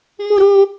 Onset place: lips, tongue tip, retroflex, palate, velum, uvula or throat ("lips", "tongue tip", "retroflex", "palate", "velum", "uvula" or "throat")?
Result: lips